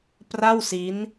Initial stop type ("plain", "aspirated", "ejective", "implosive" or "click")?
plain